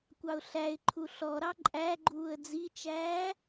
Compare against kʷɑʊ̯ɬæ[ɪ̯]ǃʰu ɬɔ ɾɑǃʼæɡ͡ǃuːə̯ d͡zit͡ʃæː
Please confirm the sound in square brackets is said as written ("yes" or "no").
yes